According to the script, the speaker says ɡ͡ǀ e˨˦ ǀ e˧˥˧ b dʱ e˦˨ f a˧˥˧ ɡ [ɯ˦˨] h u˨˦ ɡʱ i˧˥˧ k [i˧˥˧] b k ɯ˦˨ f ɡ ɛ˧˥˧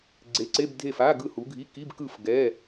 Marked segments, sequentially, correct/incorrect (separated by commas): correct, correct